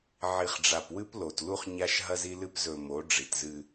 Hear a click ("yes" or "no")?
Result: no